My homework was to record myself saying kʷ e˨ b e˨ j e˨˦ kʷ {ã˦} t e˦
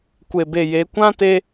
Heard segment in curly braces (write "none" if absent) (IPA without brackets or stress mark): ã˦